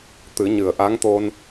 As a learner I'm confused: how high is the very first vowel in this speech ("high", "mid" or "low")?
high